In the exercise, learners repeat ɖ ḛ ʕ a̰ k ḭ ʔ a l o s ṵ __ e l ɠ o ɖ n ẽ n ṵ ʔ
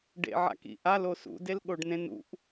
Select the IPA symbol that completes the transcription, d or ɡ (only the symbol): d